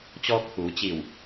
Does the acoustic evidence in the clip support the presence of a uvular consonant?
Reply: no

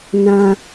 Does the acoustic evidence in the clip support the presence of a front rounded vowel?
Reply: no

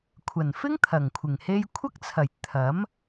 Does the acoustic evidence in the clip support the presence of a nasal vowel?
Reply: no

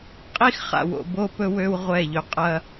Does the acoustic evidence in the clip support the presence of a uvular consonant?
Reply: yes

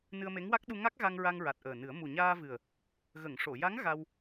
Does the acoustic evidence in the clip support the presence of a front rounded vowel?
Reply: no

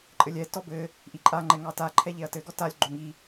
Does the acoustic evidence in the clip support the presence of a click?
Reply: yes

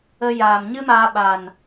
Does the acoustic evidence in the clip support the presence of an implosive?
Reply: yes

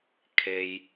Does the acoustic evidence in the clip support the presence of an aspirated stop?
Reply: yes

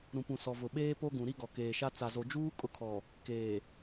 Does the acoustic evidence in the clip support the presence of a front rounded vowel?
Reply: no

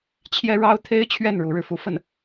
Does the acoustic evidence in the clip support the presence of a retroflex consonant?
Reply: yes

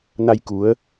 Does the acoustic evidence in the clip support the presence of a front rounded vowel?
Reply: no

